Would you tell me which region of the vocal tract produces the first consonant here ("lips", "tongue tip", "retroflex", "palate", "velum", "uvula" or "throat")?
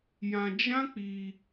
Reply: palate